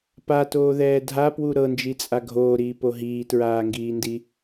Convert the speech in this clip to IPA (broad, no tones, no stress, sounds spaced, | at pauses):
p a t oː ð ɛː dʱ a p w u ɾ ɤ n d͡ʒ i t͡sʼ a ɡʱ oː ɾ iː p o ɦ iː t ɹ aː ŋ ɡ iː n d i